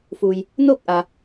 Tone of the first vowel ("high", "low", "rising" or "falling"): low